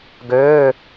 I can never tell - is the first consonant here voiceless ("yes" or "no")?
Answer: no